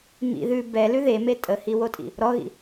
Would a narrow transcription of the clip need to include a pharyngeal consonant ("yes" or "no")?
no